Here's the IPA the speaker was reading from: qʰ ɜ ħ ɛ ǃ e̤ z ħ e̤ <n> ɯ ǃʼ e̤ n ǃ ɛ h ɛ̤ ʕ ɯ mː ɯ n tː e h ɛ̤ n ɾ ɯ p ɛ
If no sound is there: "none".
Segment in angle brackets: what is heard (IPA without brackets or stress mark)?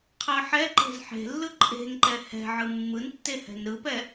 lː